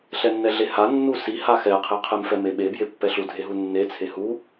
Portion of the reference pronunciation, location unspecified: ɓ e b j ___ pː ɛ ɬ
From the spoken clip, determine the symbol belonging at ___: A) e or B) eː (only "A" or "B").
A